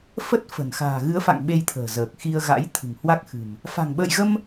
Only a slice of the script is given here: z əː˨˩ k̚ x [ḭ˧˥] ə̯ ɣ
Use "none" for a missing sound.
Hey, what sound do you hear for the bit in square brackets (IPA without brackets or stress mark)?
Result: i˧